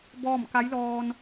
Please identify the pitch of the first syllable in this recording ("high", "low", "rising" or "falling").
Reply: falling